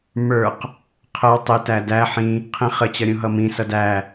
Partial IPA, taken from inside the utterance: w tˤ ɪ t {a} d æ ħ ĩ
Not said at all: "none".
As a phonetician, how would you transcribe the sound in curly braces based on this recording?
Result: æ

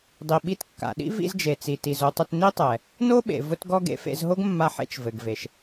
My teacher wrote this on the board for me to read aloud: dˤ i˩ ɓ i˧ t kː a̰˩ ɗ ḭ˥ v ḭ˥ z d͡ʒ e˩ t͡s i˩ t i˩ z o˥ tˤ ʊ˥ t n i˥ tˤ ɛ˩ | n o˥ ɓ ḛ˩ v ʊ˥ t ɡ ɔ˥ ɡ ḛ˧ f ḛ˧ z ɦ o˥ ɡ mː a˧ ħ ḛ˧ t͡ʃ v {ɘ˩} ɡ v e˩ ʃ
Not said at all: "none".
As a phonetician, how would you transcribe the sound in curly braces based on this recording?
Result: ɘ˩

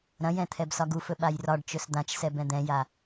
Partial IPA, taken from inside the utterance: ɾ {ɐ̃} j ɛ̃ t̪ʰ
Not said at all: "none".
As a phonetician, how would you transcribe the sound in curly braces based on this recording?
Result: ɐ̃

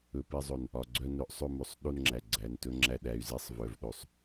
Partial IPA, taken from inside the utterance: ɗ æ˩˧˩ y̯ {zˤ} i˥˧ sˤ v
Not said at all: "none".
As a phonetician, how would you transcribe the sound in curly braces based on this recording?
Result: z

